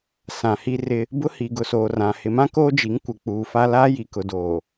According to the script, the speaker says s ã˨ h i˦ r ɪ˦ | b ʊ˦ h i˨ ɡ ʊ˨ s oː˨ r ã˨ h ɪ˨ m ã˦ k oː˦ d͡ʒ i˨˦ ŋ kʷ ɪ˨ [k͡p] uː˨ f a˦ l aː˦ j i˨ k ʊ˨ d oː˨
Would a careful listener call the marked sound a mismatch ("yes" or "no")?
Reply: no